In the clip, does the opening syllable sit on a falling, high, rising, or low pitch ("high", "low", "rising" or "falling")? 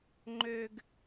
high